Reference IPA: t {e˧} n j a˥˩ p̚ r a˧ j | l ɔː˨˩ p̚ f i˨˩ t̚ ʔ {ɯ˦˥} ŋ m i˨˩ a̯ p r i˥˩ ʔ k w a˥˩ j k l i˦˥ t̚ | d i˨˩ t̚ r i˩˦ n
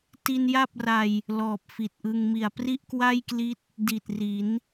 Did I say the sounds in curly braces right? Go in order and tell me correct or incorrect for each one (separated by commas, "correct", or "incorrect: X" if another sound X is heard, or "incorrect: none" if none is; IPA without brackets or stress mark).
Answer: incorrect: i˧, incorrect: ɯ˧